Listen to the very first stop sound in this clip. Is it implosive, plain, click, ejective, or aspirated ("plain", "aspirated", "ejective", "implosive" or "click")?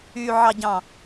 plain